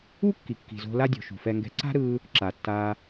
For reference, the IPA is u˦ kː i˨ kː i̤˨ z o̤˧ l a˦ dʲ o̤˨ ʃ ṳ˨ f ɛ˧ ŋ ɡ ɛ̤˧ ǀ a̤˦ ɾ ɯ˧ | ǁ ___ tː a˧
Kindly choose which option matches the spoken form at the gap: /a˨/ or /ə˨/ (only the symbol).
a˨